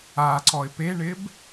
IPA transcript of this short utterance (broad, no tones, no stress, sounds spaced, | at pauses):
a ǀ ɔ ɪ̯ p e ɳ ɪ b